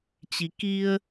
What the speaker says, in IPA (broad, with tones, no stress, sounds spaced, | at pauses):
t͡ɕ i˨˦ k i˧ ə̯